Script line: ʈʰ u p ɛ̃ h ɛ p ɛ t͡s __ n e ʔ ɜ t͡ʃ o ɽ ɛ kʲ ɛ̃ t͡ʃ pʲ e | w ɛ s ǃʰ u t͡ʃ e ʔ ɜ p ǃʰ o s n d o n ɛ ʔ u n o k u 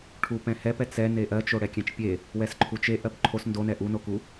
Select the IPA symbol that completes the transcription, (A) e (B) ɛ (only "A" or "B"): B